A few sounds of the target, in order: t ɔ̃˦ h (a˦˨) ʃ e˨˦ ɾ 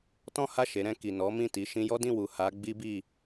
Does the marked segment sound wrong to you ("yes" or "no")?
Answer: no